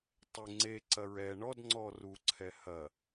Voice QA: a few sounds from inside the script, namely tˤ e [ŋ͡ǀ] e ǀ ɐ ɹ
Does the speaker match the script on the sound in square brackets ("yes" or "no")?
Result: yes